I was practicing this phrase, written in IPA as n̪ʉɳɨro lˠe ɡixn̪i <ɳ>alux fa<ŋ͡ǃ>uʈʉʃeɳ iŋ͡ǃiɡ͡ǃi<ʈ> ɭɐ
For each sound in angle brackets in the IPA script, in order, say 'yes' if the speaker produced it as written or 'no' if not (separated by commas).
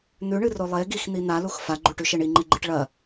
no, no, yes